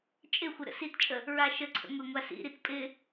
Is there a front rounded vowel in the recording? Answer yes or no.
no